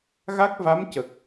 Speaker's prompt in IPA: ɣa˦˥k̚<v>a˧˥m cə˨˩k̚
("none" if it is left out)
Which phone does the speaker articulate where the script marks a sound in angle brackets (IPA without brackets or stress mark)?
v